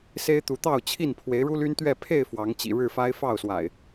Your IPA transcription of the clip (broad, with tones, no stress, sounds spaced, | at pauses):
s e˦ ɪ̯ t̪ u˨˦ t̪ ɑ˥˨ ʊ̯ t͡ɕʰ i˥˨ n pʰ w e˨˦ ɪ̯ ɻ u˦ l y˦ n t̪ ɥ ɛ˥˨ pʰ e˥˨ ɪ̯ f w ɑ˨˦ ŋ t͡ɕ ḭ˨˩ ɻ ɻ̩˥˨ f a˦ ɪ̯ f ɑ˥˨ ʊ̯ s w a̰˨˩ ɪ̯